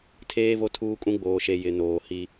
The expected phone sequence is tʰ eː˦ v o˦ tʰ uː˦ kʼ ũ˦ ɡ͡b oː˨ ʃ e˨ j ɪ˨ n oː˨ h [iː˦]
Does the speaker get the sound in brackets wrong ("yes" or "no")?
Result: yes